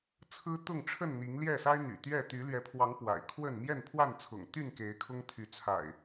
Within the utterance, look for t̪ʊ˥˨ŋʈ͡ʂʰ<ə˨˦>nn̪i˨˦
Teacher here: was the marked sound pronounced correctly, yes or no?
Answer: no